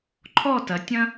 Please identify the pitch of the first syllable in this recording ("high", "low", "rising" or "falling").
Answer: falling